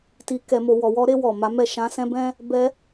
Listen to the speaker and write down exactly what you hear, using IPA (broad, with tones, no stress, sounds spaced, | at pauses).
t i˨ k ɛ˨ m o˨ w ɔ˨ w ɔ˧ ɾ e˧ w ɔ˨ m a˨˦ m ɛ˦˨ ʃ ã˧ s ɛ̃˦ b ɛ̃˦ | b ɛ˧